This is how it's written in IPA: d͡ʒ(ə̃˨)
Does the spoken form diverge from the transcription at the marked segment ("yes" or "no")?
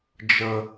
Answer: yes